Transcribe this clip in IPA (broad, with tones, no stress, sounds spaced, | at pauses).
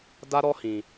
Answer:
d a˦ ɾ ɔ˦ h ĩ˧